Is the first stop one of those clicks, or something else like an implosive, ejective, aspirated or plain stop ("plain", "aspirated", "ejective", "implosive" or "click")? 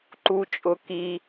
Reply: click